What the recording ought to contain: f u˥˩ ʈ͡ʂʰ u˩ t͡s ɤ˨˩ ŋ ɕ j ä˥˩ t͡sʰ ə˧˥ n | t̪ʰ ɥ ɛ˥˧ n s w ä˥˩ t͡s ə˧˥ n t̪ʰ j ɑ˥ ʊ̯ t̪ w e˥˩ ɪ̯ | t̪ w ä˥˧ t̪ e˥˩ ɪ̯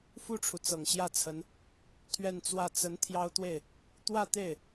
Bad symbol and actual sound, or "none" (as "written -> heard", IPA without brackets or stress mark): s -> t͡s